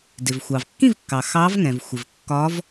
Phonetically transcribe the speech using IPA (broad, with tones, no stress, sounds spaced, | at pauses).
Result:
d ɪ˩ v xʷ ɑ˩ v kː ĩ˥˧ v kː ɑ˩ x ɑː˧˥ v ŋ ɛ̃˩ v xʷ ɪ˩ v kː ɒː˧˥ v